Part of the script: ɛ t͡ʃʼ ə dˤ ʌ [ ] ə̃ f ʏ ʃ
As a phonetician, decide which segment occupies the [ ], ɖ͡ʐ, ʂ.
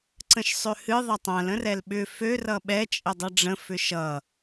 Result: ɖ͡ʐ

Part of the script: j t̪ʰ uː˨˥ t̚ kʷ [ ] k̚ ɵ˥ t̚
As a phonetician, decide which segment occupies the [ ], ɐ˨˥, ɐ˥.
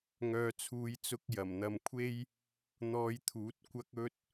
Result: ɐ˥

